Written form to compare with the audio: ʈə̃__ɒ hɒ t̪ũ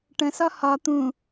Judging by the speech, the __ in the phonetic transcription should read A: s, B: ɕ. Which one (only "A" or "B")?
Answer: A